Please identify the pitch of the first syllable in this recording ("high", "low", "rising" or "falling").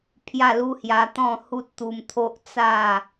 falling